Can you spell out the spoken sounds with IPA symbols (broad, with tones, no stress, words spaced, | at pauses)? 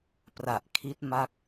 pra˨˩ʔkʰi˦˥t̚ ma˦˥k̚